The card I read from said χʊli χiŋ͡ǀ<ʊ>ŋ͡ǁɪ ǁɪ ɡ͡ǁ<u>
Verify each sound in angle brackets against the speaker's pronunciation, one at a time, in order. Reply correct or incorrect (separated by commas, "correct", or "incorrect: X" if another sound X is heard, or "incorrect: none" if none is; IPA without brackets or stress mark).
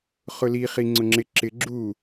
correct, correct